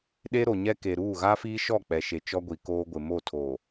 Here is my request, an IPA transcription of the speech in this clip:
ɗ e˦ ɾ o˨ ɲ ɛ˦ k e˨ ɾ uː˦˨ ɣ a˦ f iː˦ ʃ ɔ˦˨ k͡p ɛ˨ ʃ e˨ t͡ʃ ɔ˦ ɡʷ i˨ k oː˦ ɡʷ ɪ˨ m o˦˨ tʰ oː˨

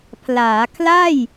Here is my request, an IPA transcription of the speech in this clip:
pʰ l aː˩˦ kʰ l a˥˩ j

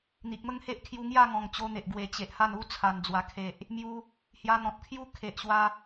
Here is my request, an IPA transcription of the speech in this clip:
n̪ i˨ k̚ m ə˥˧ ŋ h e˦ ʔ kʰ j u˧ ŋ j a˥˧ ŋ ɔ̃˨˩ ŋ t͡ɕ o˧ n̪ e˨ ʔ ɡ w e˨˩ t͡ɕ e˨ ʔ h a˥˧ n u˦ t͡sʰ a˨˩ n d͡z w a˨˩ kʰ e˨ ʔ | m j u˧ | h j a˧ n̪ ɔ̃˨ t̚ kʰ j u˦ kʰ e˨ ʔ ɕ w a˧

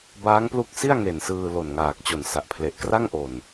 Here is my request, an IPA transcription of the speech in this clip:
b aː˦˥ ŋ p l u˦˥ k̚ s i˥˩ a̯ ŋ e˨˩ n s ɯː˧ l o˨˩ n ŋ aː˨˩ k̚ t͡ɕ o˨˩ n s a˨˩ ʔ pʰ l e˨˩ ʔ k r a˥˩ ŋ ʔ o˨˩ n

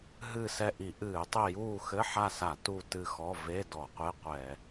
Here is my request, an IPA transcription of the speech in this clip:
ɦ ɨ˦˨ s ɛ˦˨ ʔ i˧˩˧ ʔ ɨː˧˩˧ tˤ i˦˨ j uː˦˨ x ɘ˧˥˧ ħ a˦˨ s a˧˩˧ t u˦˨ t ɨ˦˨ x ɔ˧˥˧ v e˧˥˧ d ɔ˧˩˧ qʷ e˧˥˧ qʷ ɛ˧˩˧

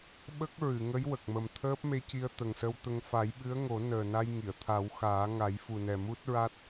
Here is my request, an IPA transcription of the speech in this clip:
ɓ ə˦˥ k̚ ɹ ɨ˨˩˨ ŋ ə˧˥ j w ə˨˩ k̚ m ə˨˩ m t̪ʰ əː˦˥ p̚ m e˧ c i˧ ə̯ t̪ ə˨˩ ŋ s ə˧ w t̪ ə˧ ŋ f a˨˩˦ j ɓ ɨ˧˥ ə̯ ŋ o˨˩˦ n əː˨˩ n a˧ j ŋ i˨˩˨ ə̯ t̪ʰ a˨˩˦ w x aː˨˩˦ ŋ a˨˩˦ j f u˨˩ n ɛ˨˩ m u˦˥ t̚ ɹ a˦˥ t̚

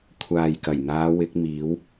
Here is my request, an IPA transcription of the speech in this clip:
kʷʰ aː˨ j k ɐ˨˩ j n̪ aː˨˧ w ɪ˨˥ k̚ m iː˨˧ w

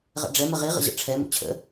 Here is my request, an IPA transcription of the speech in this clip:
ʁ ɛ̰ ɖ͡ʐ ɛ m ə ʁ i ʁ ə̰ ʑ ə̰ ʈ͡ʂʰ ɛ m ṵ t͡ɕʰ ə̰

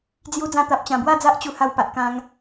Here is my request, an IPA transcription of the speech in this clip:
d͡z j u˧ d͡z ã˧ t̪ a˨ p̚ t͡ɕ ã˨˩ b w a˥˧ d͡z a˦ ʔ t͡ɕ u˧ h a˧ w p a˨ ʔ k ã˧ ŋ

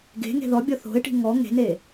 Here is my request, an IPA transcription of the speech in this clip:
ɡ e̤ ŋ e̤ ð ɔ bʲ ɔ θ o̤ ɪ̯ ʈ i̤ ŋ ɔ ŋ e̤ n e

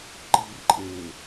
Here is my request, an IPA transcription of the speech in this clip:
ǃ iː r ǃʼ e

